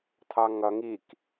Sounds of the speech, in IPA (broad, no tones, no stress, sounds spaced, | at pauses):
t̪ʰ ɑ ŋ ʌ ŋ i k